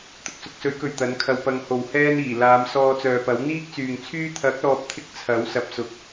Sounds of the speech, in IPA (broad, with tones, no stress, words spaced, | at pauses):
t̪ʊ˨k̚sʊ˧k̚sɵ˨˥ɥkɵ˨ɥ t̪ɐ˨˥nkʰɐ˧wpɐ˧ŋho˨w hɛː˥niː˨˩ laː˨˧msɔː˧t͡sœː˨pɐ˨˥w n̪iː˥k̚t͡syː˨ŋt͡sʰyː˥ t̪ʰɐ˨˥k̚lɔː˨p̚t̪ʰɪ˧k̚ t͡sʰɐ˨˥w sɐ˨p̚sʊ˨˥k̚